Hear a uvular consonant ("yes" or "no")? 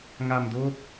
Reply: no